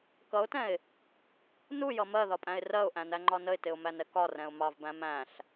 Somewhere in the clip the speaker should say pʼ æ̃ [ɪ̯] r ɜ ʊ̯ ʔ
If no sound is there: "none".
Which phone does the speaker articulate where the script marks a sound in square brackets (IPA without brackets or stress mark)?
ɪ̯